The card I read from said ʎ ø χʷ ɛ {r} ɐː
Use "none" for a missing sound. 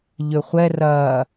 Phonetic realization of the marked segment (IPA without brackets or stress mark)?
r